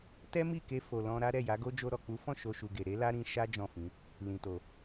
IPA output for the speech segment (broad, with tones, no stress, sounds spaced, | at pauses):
t ɛ˦ m i˦˨ k e˧ f o˨ l ɔ̃˧ ɾ a˦ ɾ ɛ˦˨ j a˨˦ ɡ o˦ d͡ʒ o˧ ɾ ɔ˨ k͡p u˨˦ f ɔ̃˦˨ ʃ o˧ ʃ u˨ ɡ e˨ ɾ e˨˦ l a˦ ɾ ĩ˧ ʃ a˦ d͡ʒ ɔ̃˦˨ f ĩ˨˦ | l ĩ˨ t o˨